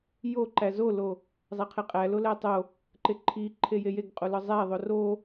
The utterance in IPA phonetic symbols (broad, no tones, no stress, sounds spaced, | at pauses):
j o ǃ æ z o l o | zˤ æ qʰ e qʼ æ l o l æ tˤ o | ǃ e ǃʰ i ǃʰ e j e j e ɡ qʼ o l ɒ zˤ æ ðˤ o r o